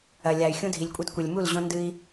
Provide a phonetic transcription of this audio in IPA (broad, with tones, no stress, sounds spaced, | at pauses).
ɐ˨ lʲ a˨ y̯ xʲ ũ˦ dʱ i˨ lʲ kʷʼ ɛ˦ d kʷ e˨ lʲ m u˦˨ l ʑ õ˦ n d ɨ˦ i̯